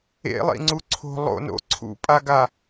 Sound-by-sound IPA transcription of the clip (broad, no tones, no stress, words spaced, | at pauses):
ḛlˠḭŋ͡ǀu ǀʰo̤ lˠo̰no̰ ǀʰṵpʼaɡa